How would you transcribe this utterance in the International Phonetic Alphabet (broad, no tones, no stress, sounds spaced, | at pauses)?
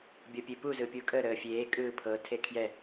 bʲ ɤ pʲ e p u z ɯ pʲ u kʼ ə ɾ əː fʲ eː kʼ ɯː pʰ ɤ tʰ e kʰ j ɛ